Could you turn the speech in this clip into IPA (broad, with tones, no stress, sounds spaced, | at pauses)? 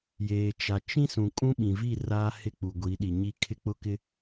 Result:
j eː˨ t͡ʃ a˨ t͡ʃ ĩ˦ s ũ˨ kʼ ũ˦ ɓ ĩ˨ v i˦˨ r aː˦ h ɪ˦ k͡p u˨ ɡʷ i˨˦ ɗ i˨ ɲ i˦ kʰ ɪ˦ k͡p ʊ˦ k ɪ˦